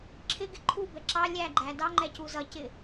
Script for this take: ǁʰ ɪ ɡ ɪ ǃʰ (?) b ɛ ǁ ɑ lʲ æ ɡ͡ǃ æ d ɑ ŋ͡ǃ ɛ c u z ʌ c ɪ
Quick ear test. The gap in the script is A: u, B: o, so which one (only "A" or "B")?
A